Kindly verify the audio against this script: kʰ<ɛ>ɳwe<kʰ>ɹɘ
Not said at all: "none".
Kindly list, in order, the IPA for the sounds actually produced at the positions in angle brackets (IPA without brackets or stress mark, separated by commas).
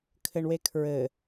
ɘ, kʰ